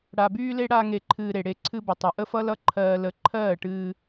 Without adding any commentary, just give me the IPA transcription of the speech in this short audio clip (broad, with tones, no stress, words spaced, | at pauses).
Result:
ɽa˧byː˦le˦ ɽa˦ŋe˧ǃʰɨː˧ ɾe˨ɽe˧ ǀʰɨ˧bə˨tˤɨ˨ ʔə˦fʌ˦lʌ˦ ǃʰɜː˧lə˧ ǃʰɜː˦˨ʈɨː˧